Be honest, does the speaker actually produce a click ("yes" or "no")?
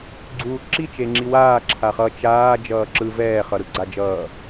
yes